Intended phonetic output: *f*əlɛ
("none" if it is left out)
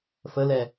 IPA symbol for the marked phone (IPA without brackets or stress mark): f